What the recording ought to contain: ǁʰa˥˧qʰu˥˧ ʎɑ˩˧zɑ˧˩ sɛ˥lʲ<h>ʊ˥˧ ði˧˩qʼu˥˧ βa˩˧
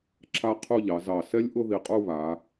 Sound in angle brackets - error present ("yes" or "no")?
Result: yes